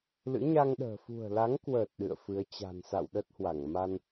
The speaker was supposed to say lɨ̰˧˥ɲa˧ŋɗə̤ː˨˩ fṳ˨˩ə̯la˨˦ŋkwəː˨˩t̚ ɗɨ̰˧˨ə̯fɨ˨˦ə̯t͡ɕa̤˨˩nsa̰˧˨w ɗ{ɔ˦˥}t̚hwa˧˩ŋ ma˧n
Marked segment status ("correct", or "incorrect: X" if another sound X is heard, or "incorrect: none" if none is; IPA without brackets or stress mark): incorrect: ə˦˥